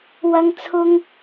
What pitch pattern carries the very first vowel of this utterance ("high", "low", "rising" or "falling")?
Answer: high